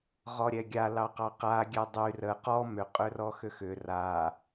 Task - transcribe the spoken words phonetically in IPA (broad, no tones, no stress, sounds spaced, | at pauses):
ʁ ɔ ɾʲ ɛ ɡʲ a l ɑ q ɑ q a ɡʲ ɛ dˤ y r ə q ɔ m ʏ qʼ ø r ɔ x ʏ x ʏ r a